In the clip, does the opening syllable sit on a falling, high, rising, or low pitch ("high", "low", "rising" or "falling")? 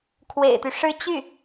low